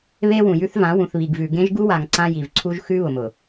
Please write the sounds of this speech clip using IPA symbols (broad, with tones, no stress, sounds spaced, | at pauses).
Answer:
β e˦ w ũ˨ j ʉ˦ θ v ã˨˦ w ũ˨ θ β i˨ ɡ v ʉ˨ ɡ ẽ˦ ʒ ɡ u˦ w a˨ ŋ ǀ ã˦ j i˨ v ǀʰ u˦ ʒ x ʉ˦ β ʊ˨ m ʊ˨